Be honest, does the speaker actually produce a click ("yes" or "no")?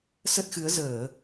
no